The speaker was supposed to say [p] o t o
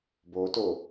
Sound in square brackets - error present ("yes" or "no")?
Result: yes